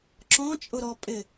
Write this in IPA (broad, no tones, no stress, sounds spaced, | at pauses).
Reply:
ǁ ɔ̃ t͡ʃʼ ʊ ɾ ɔ pʼ ɪ